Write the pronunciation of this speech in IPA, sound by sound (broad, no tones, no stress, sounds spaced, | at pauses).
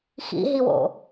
x ḭ ɦ i w o̰